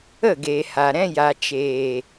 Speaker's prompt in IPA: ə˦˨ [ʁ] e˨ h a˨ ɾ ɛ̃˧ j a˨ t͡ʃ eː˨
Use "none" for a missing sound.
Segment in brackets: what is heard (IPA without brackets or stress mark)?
ɡ